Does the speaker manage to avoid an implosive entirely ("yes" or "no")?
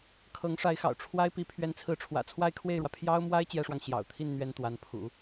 yes